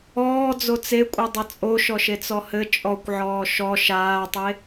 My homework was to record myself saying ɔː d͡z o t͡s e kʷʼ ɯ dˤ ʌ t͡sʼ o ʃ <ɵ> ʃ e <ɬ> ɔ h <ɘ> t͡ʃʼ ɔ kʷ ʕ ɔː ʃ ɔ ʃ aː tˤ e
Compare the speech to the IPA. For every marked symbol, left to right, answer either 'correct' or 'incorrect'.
incorrect: ɔ, incorrect: t͡s, correct

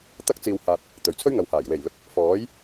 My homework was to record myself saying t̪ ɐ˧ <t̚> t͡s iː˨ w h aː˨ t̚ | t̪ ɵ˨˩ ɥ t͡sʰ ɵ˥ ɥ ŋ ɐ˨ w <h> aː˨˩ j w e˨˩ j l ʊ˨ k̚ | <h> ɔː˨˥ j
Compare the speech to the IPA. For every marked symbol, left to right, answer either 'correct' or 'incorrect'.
incorrect: k̚, correct, incorrect: f

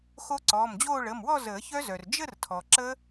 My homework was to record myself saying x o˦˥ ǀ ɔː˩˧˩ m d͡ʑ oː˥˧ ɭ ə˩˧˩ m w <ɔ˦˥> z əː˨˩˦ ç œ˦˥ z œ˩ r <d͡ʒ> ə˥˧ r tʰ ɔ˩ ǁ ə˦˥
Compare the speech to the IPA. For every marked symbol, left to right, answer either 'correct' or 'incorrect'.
incorrect: ɔ˥˧, correct

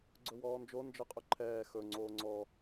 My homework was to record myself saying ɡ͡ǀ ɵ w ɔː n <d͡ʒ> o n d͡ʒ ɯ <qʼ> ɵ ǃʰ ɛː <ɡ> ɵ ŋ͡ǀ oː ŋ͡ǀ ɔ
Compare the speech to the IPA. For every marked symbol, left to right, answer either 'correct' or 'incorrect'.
correct, correct, incorrect: x

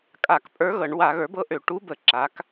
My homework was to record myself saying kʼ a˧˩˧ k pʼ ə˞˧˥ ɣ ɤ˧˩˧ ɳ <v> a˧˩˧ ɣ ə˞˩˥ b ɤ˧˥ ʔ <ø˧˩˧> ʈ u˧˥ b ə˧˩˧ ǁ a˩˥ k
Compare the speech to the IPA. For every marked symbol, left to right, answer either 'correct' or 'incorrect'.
incorrect: w, correct

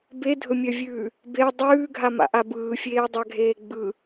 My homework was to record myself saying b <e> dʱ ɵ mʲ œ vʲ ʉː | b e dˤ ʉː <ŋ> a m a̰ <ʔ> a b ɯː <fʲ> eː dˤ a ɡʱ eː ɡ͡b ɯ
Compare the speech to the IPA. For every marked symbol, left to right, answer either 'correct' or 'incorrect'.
correct, incorrect: ɡʱ, correct, correct

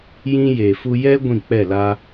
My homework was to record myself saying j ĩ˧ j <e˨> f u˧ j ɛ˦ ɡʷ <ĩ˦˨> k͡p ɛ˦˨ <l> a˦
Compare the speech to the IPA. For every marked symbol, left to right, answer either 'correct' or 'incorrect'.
correct, correct, correct

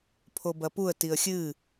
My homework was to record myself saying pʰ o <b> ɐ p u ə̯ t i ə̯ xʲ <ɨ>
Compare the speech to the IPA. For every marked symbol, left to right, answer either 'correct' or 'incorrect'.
correct, correct

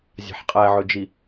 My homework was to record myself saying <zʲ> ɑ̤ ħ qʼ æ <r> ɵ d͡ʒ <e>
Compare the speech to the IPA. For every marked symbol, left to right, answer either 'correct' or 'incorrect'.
correct, incorrect: ʕ, incorrect: i

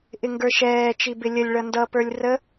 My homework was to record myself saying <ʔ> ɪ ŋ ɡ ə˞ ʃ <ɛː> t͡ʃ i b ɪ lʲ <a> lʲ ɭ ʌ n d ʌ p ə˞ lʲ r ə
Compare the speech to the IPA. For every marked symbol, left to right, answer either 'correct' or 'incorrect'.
correct, correct, incorrect: ə

